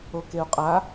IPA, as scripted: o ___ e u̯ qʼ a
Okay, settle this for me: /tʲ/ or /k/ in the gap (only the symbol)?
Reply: k